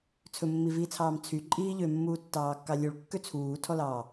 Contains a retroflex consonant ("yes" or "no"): yes